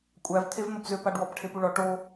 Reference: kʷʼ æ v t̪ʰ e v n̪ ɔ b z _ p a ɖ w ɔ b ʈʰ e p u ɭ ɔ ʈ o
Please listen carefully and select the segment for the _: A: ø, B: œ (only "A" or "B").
A